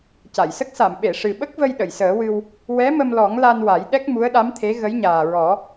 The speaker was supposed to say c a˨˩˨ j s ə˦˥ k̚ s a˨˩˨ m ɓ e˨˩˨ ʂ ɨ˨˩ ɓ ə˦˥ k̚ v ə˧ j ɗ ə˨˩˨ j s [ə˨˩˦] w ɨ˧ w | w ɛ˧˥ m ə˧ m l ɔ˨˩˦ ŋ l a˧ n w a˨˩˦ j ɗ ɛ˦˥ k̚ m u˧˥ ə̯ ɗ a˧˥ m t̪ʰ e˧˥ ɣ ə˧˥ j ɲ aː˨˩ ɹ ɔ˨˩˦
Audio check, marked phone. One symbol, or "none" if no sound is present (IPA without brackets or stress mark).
əː˨˩˦